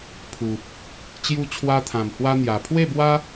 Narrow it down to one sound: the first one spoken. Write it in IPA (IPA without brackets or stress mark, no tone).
pʰ